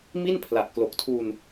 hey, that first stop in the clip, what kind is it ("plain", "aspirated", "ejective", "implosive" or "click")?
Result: aspirated